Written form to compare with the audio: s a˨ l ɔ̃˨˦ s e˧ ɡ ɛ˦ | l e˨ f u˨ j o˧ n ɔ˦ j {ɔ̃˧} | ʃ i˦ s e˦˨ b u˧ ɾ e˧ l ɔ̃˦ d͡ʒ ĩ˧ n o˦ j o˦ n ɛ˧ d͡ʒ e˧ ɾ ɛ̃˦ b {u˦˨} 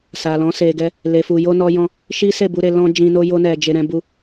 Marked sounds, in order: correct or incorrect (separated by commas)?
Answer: incorrect, incorrect